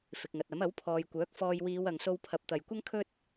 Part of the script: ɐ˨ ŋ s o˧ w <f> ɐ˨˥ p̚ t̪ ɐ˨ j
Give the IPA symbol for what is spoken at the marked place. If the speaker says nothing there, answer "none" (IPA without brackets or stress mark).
pʰ